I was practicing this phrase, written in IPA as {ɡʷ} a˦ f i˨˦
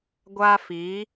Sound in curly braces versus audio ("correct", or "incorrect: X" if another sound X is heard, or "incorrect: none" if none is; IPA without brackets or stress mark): correct